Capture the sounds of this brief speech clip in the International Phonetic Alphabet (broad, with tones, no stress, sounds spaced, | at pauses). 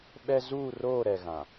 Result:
ɓ ɛ˦ z uː˦˨ r oː˦˨ ɾ ɛ˨ ɣ ã˨